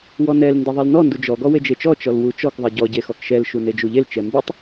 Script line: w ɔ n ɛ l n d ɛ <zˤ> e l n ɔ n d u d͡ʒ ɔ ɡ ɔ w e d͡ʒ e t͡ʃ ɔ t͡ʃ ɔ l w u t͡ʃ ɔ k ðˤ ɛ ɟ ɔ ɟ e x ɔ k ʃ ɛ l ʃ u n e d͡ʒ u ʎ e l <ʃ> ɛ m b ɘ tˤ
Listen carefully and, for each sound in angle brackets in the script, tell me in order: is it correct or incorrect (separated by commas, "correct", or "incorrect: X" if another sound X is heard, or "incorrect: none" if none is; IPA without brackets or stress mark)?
incorrect: ðˤ, incorrect: t͡ʃ